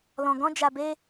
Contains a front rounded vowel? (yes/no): no